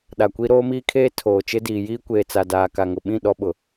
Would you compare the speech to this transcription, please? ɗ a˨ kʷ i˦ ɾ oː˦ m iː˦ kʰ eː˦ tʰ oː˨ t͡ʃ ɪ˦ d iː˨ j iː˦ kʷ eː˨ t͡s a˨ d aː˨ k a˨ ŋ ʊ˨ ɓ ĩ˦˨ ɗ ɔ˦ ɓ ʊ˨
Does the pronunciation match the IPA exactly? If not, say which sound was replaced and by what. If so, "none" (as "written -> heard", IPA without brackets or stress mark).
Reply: none